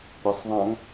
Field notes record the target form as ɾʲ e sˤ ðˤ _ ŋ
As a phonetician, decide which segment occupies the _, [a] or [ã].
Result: ã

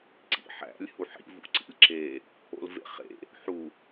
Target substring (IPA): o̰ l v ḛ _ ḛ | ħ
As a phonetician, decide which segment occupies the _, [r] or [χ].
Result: χ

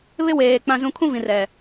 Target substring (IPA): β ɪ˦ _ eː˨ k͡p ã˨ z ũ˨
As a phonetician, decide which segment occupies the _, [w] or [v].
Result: w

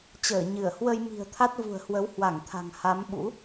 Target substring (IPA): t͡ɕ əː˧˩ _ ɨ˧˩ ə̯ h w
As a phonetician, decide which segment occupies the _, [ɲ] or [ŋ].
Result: ɲ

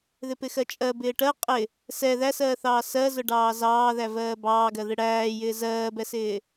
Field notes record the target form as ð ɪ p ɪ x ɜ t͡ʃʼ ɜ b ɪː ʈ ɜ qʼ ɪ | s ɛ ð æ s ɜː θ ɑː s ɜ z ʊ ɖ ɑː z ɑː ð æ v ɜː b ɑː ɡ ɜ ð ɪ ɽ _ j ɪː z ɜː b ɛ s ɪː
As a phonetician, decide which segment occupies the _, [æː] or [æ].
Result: æː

